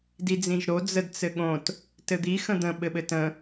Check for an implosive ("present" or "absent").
present